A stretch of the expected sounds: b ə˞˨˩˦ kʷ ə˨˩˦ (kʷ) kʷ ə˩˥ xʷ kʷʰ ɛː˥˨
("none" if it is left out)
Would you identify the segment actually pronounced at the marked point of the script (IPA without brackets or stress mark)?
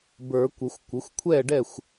xʷ